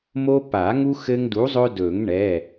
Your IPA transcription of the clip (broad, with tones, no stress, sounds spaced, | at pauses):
m o˦ p a˨˩˦ ŋ u˦ x ɘ˦ ŋ d u˨˥ zˤ ɵ˦ d ɵ˨˩˦ ŋ ɳ ɛ˩˧˩